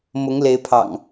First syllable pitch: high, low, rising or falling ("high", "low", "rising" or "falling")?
rising